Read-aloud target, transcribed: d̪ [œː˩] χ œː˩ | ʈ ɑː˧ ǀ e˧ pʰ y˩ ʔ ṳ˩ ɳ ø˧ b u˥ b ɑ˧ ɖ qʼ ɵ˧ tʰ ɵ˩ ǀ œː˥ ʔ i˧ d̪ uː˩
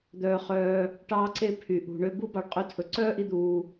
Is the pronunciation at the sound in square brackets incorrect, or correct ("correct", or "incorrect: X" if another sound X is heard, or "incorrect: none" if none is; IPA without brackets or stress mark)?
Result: correct